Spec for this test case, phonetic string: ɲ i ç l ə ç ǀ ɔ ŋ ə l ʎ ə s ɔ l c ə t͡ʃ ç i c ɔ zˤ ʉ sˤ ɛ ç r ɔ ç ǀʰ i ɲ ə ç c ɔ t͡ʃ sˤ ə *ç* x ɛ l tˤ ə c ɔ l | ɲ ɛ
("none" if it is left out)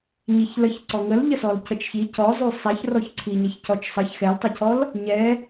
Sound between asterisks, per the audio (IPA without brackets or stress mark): ç